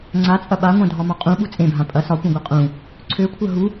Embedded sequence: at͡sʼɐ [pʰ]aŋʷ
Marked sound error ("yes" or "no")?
yes